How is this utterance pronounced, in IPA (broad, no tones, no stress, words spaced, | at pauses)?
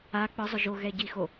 a k͡pɯzˤʊ ʒoɣɛɟixo